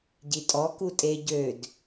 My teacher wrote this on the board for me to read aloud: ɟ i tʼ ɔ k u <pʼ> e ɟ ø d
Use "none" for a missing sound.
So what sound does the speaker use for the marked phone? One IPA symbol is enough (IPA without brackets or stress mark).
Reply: tʼ